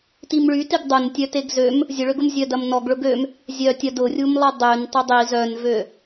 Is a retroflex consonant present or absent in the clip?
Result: present